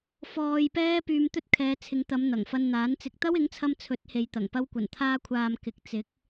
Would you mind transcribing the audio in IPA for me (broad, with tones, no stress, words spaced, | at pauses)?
fɔː˧jpɛː˥ pyː˧m t̪ɵ˥t̚kʰɛː˨˧t͡sʰɪ˨˧ŋt̪ɐ˨˧m n̪ɐ˨˩ŋfɐ˧nn̪aː˨˥n t͡sɪ˨k̚t̪ɐ˥wɪ˨˥ŋt͡sʰɐ˧m t͡sʰɵ˨˥t̚he˨jt̪ɐ˨˩ŋ pɐ˧wkʷɐ˨˩nt̪ʰaː˧kʷʰaː˨m kɪ˨˥k̚t͡sɪ˨˥k̚